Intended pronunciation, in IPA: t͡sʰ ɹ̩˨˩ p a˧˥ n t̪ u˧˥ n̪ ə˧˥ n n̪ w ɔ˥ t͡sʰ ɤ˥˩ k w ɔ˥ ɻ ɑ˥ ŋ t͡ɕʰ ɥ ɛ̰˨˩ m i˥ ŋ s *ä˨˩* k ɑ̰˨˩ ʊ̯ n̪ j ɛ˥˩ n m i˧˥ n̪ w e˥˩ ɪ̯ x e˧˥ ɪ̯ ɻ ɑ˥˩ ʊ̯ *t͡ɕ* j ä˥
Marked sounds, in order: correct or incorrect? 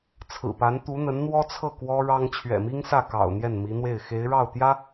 incorrect: ä˥˩, incorrect: t̪

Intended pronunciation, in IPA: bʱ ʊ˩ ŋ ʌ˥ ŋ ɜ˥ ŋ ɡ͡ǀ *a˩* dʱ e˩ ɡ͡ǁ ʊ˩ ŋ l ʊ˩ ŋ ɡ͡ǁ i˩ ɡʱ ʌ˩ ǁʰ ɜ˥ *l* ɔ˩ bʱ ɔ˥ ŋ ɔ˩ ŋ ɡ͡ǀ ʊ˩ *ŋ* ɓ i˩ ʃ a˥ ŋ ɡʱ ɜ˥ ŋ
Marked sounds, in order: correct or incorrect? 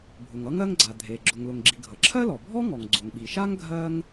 correct, correct, correct

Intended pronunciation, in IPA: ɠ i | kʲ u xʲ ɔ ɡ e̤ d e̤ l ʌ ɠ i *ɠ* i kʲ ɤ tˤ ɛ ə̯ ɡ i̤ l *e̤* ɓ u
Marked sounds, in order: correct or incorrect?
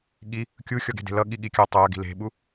correct, correct

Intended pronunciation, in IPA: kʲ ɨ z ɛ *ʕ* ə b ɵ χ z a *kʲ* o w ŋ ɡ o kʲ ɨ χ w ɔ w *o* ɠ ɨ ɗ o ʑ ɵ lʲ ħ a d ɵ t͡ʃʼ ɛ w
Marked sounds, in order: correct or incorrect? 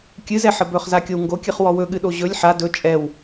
incorrect: ħ, correct, incorrect: ɵ

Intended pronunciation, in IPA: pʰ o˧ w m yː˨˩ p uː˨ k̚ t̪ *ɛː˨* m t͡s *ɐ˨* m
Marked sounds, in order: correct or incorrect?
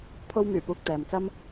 correct, incorrect: ɐ˥

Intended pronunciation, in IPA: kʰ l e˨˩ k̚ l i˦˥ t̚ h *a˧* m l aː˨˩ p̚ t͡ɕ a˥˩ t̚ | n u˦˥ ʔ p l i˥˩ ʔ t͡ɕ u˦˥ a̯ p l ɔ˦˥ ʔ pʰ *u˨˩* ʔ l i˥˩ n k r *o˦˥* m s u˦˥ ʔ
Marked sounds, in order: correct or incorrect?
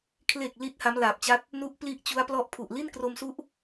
incorrect: a˦˥, correct, incorrect: o˧

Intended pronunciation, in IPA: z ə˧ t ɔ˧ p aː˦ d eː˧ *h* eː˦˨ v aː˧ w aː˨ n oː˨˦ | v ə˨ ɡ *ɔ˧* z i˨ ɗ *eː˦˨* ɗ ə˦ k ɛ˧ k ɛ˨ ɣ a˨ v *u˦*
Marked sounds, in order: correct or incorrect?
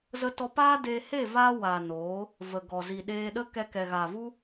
correct, incorrect: ɔ˨, incorrect: eː˧, correct

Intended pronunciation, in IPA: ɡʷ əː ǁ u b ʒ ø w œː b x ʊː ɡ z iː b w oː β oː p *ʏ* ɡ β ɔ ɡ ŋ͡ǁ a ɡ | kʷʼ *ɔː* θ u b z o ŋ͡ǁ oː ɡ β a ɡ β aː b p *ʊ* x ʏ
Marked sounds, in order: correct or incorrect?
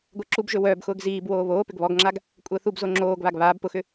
correct, incorrect: əː, correct

